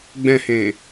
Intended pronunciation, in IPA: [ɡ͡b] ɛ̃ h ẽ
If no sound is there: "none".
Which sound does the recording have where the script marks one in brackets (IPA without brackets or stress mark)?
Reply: ɡ͡b